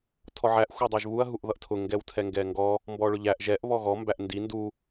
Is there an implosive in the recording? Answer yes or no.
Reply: no